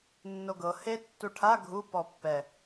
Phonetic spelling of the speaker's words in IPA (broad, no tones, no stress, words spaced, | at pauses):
nːoɡɤ he tːuʈʰa ɡʱu pɔpːɛ